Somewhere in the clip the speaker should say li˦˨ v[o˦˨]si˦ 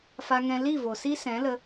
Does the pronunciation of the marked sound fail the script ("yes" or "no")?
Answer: yes